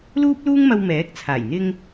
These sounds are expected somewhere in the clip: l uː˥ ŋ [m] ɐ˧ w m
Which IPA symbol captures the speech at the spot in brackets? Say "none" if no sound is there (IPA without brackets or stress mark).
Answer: m